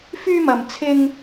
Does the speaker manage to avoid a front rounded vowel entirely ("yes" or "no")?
no